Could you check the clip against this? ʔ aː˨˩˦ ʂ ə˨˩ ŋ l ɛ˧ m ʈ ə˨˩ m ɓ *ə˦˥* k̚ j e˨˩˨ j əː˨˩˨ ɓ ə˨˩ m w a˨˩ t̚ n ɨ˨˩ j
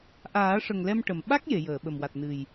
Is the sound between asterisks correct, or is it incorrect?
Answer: incorrect: a˦˥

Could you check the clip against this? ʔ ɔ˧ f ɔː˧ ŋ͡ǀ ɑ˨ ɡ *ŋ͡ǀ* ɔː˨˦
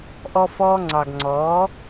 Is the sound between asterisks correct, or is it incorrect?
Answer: correct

